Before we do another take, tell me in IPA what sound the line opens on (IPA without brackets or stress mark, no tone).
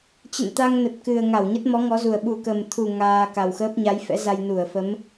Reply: t͡ɕ